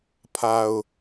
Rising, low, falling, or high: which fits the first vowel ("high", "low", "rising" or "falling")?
low